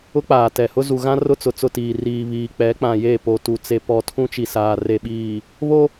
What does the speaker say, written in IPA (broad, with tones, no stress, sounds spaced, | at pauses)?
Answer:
ʊ˦ k͡p aː˨ t ɛ˨ h ʊ˦ z u˨ ɣ ã˦ r ʊ˦ t͡s ʊ˨ t͡s ʊ˦˨ t iː˨ r iː˨ β iː˨ k͡p ɛ˨˦ k͡p ã˨ j e˦˨ p o˨ t u˨ t͡s e˨ p ɔ˨ tʰ ũ˦ t͡ʃ i˨ s aː˨ r e˨ ɓ iː˨ | β o˦